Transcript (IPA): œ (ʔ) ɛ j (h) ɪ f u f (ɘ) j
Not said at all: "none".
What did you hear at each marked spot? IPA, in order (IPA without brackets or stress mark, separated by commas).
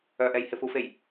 ʔ, h, e